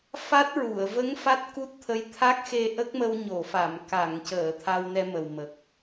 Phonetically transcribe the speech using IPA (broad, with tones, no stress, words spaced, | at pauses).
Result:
fa˦˥t̚ɹu˨˩˨ə̯ və˧˥ŋ fa˦˥t̚ku˦˥t̚t̪ʰə˧˥j t̪ʰa˦˥k̚xe˧ ʔə˦˥k̚mə˧wɲo˨˩˨fa˨˩˨m ka˨˩˨ŋcəː˨˩˨ t̪ʰa˧wnɛ˧mə˨˩wmə˨˩k̚